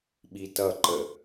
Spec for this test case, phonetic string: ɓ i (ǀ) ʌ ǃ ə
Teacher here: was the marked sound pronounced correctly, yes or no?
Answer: no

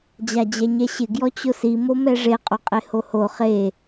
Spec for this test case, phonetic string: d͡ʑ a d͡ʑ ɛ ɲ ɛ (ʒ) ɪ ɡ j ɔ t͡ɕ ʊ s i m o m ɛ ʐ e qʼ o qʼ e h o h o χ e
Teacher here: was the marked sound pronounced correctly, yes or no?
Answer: no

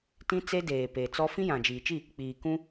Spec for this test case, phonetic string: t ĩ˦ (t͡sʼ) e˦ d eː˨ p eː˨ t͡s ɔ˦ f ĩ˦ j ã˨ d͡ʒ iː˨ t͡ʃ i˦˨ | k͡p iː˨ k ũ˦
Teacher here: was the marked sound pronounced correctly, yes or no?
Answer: no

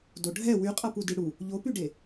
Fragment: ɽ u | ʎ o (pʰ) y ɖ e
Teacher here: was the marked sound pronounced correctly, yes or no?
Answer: no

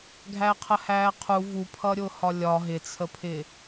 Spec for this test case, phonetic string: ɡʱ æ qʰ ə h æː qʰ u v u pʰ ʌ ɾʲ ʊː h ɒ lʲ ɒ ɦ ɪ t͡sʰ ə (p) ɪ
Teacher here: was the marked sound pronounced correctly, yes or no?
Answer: no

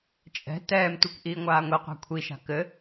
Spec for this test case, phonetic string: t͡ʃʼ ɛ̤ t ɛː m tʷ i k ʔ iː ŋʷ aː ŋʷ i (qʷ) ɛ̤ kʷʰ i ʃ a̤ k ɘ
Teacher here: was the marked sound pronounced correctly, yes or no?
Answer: yes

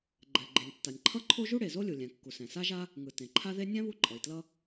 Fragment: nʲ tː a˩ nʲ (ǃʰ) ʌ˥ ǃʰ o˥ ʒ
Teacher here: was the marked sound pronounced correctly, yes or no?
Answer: yes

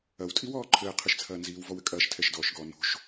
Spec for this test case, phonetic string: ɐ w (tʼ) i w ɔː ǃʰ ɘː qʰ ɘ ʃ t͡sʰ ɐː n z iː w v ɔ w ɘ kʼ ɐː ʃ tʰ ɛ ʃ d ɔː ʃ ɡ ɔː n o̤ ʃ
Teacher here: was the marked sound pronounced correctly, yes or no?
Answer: yes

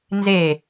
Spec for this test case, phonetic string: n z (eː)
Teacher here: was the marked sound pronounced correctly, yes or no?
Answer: no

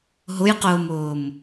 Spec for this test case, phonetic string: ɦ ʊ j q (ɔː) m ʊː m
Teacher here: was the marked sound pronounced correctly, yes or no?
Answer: no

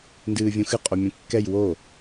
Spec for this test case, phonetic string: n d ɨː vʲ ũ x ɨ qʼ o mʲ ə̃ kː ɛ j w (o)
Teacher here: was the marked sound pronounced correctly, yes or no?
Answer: yes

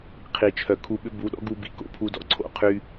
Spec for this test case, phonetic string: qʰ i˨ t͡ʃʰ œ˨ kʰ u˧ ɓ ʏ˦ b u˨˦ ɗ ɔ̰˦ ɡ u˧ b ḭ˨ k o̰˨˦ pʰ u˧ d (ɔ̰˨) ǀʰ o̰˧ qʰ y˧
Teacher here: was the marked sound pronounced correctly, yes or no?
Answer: yes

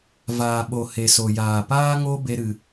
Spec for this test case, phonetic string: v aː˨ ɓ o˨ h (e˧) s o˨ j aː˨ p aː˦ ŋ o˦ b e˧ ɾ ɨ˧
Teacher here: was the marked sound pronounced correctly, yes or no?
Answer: no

